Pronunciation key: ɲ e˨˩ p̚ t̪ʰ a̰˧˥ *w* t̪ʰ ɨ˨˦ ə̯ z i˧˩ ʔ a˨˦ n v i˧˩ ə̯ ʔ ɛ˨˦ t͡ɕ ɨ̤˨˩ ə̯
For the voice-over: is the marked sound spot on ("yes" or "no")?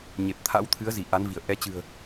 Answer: yes